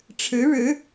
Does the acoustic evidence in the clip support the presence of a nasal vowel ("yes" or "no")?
no